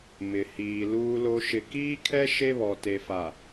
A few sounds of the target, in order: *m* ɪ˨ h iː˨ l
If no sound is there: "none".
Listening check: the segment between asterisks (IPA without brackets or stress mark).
m